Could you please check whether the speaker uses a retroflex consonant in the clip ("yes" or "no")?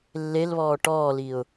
yes